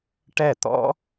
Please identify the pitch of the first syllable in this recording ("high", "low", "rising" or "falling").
falling